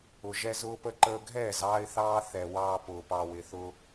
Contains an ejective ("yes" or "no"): no